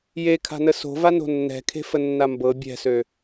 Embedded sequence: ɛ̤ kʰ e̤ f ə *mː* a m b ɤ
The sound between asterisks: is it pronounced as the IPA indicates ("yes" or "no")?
no